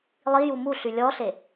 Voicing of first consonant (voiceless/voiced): voiced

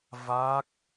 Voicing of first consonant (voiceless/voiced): voiced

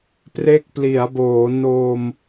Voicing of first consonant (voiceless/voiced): voiceless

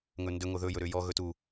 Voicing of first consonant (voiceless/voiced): voiced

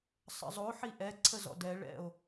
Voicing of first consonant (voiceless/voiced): voiceless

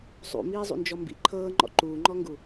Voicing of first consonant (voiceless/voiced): voiceless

